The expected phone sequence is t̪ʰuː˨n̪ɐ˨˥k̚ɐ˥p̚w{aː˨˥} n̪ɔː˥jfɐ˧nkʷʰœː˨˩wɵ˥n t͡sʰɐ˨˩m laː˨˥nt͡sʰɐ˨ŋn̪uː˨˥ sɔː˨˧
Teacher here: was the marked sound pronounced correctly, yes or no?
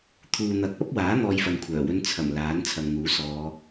yes